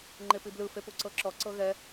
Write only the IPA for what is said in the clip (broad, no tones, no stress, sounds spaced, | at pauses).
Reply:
ŋ͡ǃ e p i b l ɯ f e p u ǀ ɤ ǁ ɔ ǀ ɤ ɣ ɛ